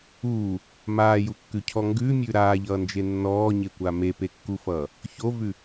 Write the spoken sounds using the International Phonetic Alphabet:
uː | m aː j u kː ʉ cʰ ɔ ŋ ɡ ʉ mʲ ʉ ɾ aː ʎ ʌː n d͡ʒ e nː ɔː ɲ e kʷ a m e p e kː u f ʌː | ç o v ʉ

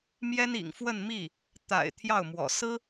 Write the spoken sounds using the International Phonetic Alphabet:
m j ɛ˥ n ḭ˨˩ ŋ f w ə˥˧ n m i˥˩ | t̪ a̰˨˩ ɪ̯ t̪ʰ j ɑ˥˩ ʊ̯ m w ɔ̰˨˩ s ɹ̩˥

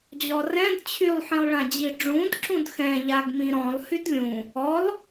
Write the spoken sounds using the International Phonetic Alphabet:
d͡ʑ ɔ r ɛ̃ d t͡ɕʰ y lˠ ħ ĩ lˠ ɭ ã d͡ʑ i ɖ͡ʐ ũ d ǁ ũ d x ɛ̃ ʎ a ɡ m ĩ ɾ ɔ̃ lˠ h y d lʲ ũ | ɔ lˠ

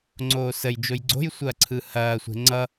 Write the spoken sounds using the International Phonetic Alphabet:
ŋ͡ǀ oː s ə j d͡ʒ o j ɡ͡ǀ o̤ j sʷ ɐː ǀʰ ɯ h ɐː sʷ e̤ ŋ͡ǀ ʌ

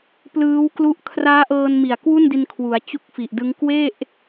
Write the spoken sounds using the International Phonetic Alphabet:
p l ɯː˦˥ w k l u˦˥ ʔ kʰ r aː˦˥ ʔ ɤː˧ n m i˨˩ a̯ k w u˥˩ n d i˧ n kʰ w u˩˦ a̯ t͡ɕ u˦˥ k̚ f i˨˩ ʔ d ɯ˦˥ ŋ k w e˥˩ ʔ

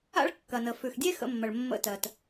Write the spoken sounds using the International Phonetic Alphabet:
a̰˥ ɭ kː ɐ˩ n ə˩ f ʉ˩ x dʲ e˥ x ə̰˧˩˧ mː ɐ˩ ɭ mː ə̰˧˩˧ t ɜ˩ t

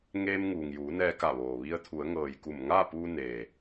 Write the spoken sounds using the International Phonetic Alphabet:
ŋ eː˧ m ŋ uː˩ ŋ j uː˩˧ n ɛː˧ k a˧˩ ʋ oː˩ ʋ i˧ ə̯ t̪ʰ u˩˧ ə̯ ŋ ɤː˩ j k u˧˩ m ŋ aː˥˨ p uː˧ n eː˩

